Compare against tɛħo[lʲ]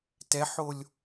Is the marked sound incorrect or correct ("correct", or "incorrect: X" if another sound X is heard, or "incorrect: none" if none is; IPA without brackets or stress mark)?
correct